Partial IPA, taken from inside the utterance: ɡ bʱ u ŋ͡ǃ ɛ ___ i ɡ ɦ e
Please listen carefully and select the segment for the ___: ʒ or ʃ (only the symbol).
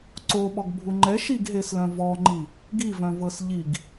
ʃ